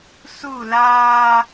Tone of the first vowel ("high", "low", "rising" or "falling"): falling